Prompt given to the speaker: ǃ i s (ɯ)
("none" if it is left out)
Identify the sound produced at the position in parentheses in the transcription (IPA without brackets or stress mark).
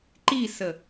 ə